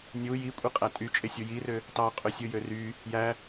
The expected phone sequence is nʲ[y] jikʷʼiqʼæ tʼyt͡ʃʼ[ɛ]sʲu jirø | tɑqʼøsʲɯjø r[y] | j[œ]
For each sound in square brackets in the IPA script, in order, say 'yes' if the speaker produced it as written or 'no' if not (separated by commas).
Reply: no, no, yes, no